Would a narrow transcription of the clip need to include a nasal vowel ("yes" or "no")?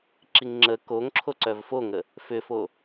no